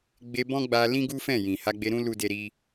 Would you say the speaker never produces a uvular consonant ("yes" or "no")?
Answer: yes